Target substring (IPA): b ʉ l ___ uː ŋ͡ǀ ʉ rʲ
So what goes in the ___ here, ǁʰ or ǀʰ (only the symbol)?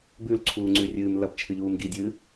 ǀʰ